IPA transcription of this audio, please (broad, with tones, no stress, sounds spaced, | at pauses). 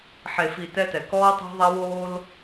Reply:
ħ e˨ f i˨ t ɛ˦ t ɛ˨ k ɔː˦ tˤ e̤˦ ðˤ a˦ w oː˦ l